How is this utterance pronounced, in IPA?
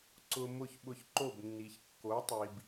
ǀ ʊ˧ m ʊ˥˩ ç ɓ ʊ˧ ç ǃ o˥˩ b nː i˩ ç kː o˩˥ tˤ i˩ b

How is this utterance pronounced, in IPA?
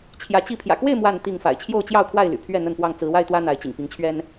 t͡ɕʰ j ä˨˦ t͡ɕ i˥˨ pʰ j ä̰˨˩ k w e˥˨ ɪ̯ m w a˥˨ n t̪ i˥˨ ŋ f a̰˨˩ ɪ̯ t͡ɕʰ j o˥˨ ʊ̯ t͡ɕ j ɑ˥˨ ʊ̯ kʰ w a˥˨ ɪ̯ l y̰˨˩ pʰ ɥ ɛ˥˨ n̪ ə˥˨ n p w ɑ˥˨ ŋ t͡s ɹ̩˨˦ w a˥˨ ɪ̯ t̪ w ä˦ n̪ a˨˦ ɪ̯ t͡ɕ ḭ˨˩ ŋ p i˨˦ ŋ t͡ɕʰ ɥ ɛ˦ n

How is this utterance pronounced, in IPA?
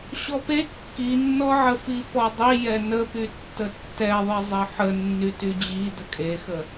ɕ ɔ p e kː i nː ɔ ʕ ə f i f ɔ dˤ i j ɛ n ə p y tː ə tː ɛ ðˤ i zˤ ɘ ħ ə nː y t y d͡ʑ i d ə kʼ e x ə

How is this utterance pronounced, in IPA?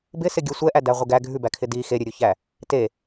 b ɪ s ɪ ɡʲ ə sʷ ɛ ʔ æ d æ ʁʷ ɪ ɡ æ ɡʱ ʉ b æ kʰ ɪ d i x e ɾʲ ʉ ɾʲ u ç æ | t e

